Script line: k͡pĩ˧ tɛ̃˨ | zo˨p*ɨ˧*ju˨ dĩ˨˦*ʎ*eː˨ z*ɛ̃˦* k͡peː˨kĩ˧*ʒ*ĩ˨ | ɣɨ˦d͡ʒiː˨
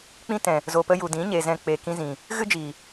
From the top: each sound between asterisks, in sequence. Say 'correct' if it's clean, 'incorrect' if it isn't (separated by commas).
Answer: incorrect, incorrect, incorrect, incorrect